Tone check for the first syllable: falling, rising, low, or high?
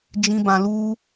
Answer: high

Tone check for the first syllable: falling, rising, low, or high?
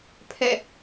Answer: falling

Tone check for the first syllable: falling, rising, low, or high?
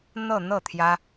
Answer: falling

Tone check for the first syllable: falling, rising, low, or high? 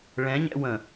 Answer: rising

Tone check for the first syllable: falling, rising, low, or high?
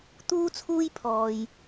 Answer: high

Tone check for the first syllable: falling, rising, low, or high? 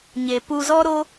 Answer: low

